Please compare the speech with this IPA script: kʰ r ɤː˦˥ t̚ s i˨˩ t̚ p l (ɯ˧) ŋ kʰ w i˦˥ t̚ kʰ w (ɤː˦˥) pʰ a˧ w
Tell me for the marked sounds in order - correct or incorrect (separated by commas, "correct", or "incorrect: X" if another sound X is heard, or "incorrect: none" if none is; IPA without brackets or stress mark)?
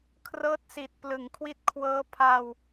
incorrect: ɯ˨˩, correct